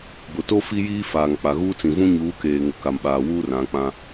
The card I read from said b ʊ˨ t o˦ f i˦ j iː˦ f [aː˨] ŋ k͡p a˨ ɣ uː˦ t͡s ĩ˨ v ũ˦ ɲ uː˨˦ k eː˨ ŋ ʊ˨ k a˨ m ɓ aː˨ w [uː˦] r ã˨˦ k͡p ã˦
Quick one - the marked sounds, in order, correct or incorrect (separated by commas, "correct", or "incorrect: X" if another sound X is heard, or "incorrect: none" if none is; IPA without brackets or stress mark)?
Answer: correct, correct